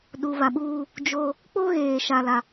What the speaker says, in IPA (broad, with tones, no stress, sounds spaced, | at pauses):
ɗ u˨ β a˨ ɓ uː˦ | d͡ʒ o˦ | k͡p o˦ ɣ eː˨ ʃ a˨ l a˦